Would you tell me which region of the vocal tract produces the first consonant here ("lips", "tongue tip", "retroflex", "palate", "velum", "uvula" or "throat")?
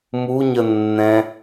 lips